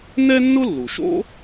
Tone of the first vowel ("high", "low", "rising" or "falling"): high